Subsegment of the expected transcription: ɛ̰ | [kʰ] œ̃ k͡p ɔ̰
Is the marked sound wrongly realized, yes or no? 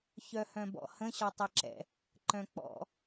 yes